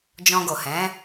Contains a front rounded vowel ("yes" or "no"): no